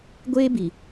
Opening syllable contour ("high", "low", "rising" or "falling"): high